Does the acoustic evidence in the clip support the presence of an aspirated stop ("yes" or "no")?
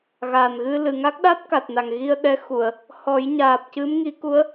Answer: no